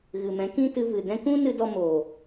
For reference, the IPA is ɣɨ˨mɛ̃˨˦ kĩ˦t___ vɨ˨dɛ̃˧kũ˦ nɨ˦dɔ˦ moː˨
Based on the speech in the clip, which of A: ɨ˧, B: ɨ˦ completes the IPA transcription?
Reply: A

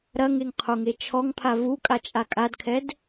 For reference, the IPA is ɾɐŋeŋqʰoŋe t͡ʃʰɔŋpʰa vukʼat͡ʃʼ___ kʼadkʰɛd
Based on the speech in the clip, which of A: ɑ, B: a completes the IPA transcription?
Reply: B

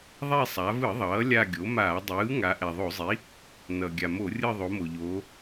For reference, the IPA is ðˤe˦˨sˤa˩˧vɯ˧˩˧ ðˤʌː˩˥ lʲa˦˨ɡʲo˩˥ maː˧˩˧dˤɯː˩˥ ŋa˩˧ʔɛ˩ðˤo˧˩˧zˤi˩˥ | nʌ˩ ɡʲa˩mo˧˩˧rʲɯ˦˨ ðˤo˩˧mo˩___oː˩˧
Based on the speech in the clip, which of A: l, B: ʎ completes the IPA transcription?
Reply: B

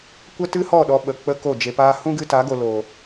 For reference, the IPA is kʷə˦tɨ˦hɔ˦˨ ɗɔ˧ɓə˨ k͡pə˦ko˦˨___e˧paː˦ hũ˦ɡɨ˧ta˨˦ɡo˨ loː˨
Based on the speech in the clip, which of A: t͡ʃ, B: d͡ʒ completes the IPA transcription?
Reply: B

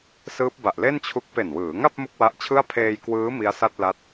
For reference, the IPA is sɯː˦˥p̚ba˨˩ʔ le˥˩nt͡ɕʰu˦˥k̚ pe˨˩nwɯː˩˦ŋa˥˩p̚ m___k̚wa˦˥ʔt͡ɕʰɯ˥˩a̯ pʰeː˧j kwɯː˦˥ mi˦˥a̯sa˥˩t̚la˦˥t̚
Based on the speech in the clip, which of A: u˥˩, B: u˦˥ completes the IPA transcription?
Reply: A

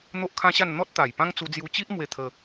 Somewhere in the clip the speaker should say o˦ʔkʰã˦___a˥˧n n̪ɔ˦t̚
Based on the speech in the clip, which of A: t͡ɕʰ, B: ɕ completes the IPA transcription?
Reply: B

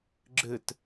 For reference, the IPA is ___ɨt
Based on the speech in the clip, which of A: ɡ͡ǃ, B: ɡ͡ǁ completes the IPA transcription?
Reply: B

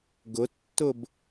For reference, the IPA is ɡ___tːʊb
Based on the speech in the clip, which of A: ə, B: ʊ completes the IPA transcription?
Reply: B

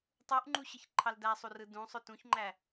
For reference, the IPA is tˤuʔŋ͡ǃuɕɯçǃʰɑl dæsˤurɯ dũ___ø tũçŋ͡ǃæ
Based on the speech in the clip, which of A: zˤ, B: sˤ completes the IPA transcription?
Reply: B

